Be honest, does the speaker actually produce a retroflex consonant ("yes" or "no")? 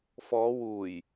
no